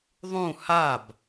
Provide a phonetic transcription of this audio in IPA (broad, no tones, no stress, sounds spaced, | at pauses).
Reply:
ðˤ ũ h a b